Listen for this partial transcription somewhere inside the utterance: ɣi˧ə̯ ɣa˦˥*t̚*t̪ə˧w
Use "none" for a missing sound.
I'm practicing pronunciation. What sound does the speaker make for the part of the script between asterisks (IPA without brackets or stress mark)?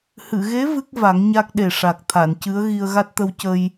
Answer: t̚